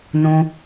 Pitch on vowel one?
high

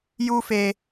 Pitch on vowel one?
high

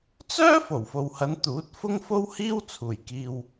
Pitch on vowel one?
high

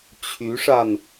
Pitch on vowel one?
rising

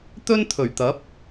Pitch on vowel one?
high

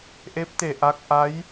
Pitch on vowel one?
rising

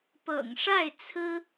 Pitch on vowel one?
low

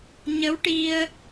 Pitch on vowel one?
rising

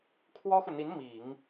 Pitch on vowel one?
high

